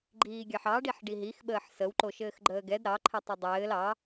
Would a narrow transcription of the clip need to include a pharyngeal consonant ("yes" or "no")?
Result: yes